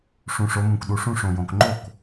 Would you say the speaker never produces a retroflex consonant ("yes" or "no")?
no